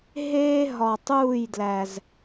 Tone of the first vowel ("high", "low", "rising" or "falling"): high